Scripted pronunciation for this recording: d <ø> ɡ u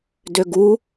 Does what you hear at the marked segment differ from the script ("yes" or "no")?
no